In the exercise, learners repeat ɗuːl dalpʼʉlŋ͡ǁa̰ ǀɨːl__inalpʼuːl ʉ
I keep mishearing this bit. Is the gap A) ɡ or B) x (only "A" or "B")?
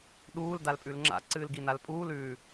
A